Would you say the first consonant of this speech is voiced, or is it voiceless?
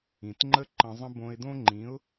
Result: voiceless